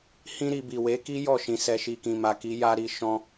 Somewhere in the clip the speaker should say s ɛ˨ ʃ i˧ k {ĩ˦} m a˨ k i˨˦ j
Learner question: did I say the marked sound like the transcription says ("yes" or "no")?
no